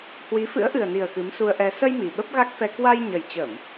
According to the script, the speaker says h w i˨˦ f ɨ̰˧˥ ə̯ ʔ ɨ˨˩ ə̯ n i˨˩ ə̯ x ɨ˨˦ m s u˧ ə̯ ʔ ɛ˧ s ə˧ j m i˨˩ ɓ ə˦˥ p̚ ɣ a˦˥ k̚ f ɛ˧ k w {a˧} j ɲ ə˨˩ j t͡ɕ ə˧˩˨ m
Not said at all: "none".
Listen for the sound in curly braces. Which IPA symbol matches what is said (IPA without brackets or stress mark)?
a˧